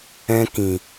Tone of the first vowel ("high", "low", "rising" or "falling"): high